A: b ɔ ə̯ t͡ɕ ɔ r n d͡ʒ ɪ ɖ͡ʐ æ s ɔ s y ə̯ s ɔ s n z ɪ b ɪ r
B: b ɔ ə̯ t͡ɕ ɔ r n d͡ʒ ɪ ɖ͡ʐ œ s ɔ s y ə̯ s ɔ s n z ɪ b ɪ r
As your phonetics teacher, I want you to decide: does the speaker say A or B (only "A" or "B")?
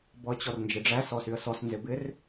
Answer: A